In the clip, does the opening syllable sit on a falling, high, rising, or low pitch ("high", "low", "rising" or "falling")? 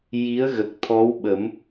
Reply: rising